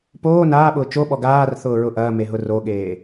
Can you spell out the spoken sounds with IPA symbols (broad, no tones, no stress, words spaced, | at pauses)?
poː naːɓʊː t͡ʃoɓɔ ɡaːr θʊːɹʊʔɐːme ɦʊroɠeː